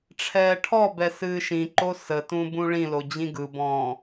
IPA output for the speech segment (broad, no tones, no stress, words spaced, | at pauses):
ʈ͡ʂʰɛːʈʰɔbɛ sɨːʃĩǃo sətũ bũɭĩlo d͡ʑĩɡɯbɔ̃ː